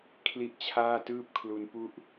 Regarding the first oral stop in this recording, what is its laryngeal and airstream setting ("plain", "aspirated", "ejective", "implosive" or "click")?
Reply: aspirated